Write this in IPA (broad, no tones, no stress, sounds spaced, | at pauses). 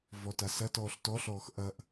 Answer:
v ɔ t a s ɐ t ɔː ɬ t ɔ ɬ ɔː x ʔ ɐ ʔ